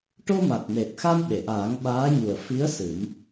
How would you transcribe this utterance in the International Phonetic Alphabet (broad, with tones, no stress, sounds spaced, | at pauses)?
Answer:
ʈ o˧ m a˨˩ t̚ n e˨˩ t̚ x a˧ n ɓ e˨˩˨ ʔ aː˨˩˦ ŋ ɓ aː˧˥ ɲ u˨˩ ə̯ f i˧˥ ə̯ s ɨ˨˩˦ m